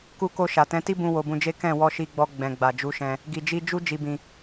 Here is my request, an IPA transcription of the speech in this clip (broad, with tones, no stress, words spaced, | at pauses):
ku˧ko˧ ʃa˨tɛ̃˨˦ti˦bũ˧ wo˧bũ˧d͡ʒe˦ kɛ̃˦˨ wɔ˧ʃi˧ɡ͡bɔ˧ ɡ͡bɛ̃˨ɡ͡ba˨ d͡ʒu˨˦ʃɛ̃˧ | ɡi˧d͡ʒi˦ d͡ʒu˦ d͡ʒi˧bĩ˧